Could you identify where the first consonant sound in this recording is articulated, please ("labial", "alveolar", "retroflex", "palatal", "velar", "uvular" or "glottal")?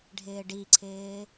retroflex